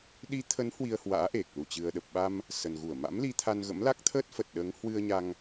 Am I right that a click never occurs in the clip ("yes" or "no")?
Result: yes